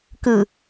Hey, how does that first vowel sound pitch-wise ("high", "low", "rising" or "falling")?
low